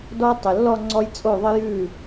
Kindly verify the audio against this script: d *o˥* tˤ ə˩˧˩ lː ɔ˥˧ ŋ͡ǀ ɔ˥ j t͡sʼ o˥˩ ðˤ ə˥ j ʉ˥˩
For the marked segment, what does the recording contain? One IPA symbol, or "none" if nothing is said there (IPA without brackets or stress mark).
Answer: ɔ˥